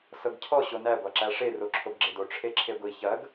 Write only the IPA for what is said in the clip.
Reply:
sɤɡcʰɔ ɕonæ ɡʷɑǁæʂe roǁʰoɡɡ͡ǁedo ʈ͡ʂʰeǁʰeɡʷi çɐɡ

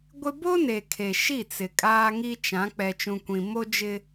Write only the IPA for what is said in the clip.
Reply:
ɡʷɪ˦ bo˦ne˨kʰe˨ ʃi˦˨t͡sɪ˨ kʼaː˦ŋi˦t͡ʃã˨˦ k͡pɛ˨t͡ʃũ˨kʷĩ˨ mo˦d͡ʒɪ˦

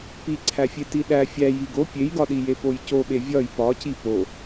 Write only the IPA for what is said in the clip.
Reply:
piǀʰæfʲe tiɗæ fʲæ jiɡo pʲejɡɒɗije pojcoɓe vʲɒj pɒci po

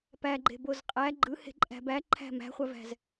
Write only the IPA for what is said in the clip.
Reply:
pæɡ͡ǃe̤boz qʼæ ɡ͡ǃɯhe̤ǃʼæ̤ bæǃʰæ̤ mæ̤χʷævæ̤z

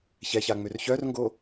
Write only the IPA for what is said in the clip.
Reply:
çɛçaŋ͡mør çœrŋɡo

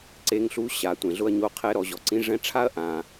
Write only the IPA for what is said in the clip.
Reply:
ǀe˧˥ŋɬu˧˥ ɕa˩ tʷẽ˩ɮʊ˧ɐ̯ ɲo˧˥qʰɛ˧˥ ɾɔ˩˧ʑɔ˩ǀĩ˧˥ ʐɛ̃˧˥ʈ͡ʂʰa˥ɐ̯ ʔã˩

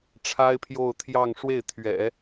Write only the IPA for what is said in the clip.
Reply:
ʈ͡ʂʰa˥ɪ̯pʰjo˥˧ʊ̯t̪ʰjɑ˥˧ŋ ʂwe˥˩ɪ̯ t̪ʰɥɛ̰˨˩˦

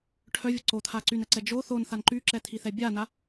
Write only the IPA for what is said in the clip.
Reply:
ʈʰœvʲə ǀot̪ʰa ǀynɛǀɛ d͡ʒo θonθan ǃyǁɛt̪ʰiθɛ bʲana

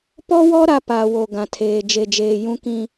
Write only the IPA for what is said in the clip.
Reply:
pɔ˦wɔ˦ ɾa˦paː˨wo˨ ɡã˨tʰeː˨ d͡ʒe˨d͡ʒeː˨jũ˦kĩ˦

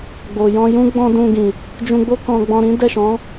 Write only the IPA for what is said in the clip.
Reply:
ɡ͡bo˨jɔ̃˧jũ˦ ɡ͡bɔ̃˦dũ˧ɡĩ˨ | d͡ʒũ˧ɡ͡bo˦ kɔ̃˧ɡ͡bɔ̃˧ɾĩ˦ dɛ˦˨ʃɔ̃˨˦

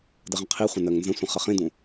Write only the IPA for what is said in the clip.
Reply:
dəʁə̃qʰiχʷə̃ nɜŋnzə̃sʷə̃ χəχĩdũ

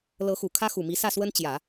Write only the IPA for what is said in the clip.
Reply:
lɤ˧˥xu˨˩ kʰä˥xu˨˩mi˧˥ sä˥˩swə˥n t͡ɕjä˨˩˦

